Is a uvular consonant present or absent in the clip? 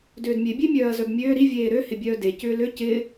absent